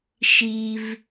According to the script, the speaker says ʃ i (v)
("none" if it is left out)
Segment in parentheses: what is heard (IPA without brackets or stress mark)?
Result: v